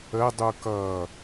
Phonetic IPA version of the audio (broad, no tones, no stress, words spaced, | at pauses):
ə dˤukʌ